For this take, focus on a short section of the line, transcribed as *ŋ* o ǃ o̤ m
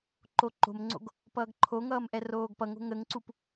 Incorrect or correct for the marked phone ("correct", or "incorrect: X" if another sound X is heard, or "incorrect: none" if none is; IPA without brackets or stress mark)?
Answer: incorrect: ǃ